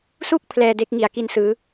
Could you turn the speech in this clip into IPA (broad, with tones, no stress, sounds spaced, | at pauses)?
s u˥˩ k̚ pʰ l ɛː˧ d e˦˥ k̚ ŋ i˩˦ a̯ k i˧ n s ɯː˩˦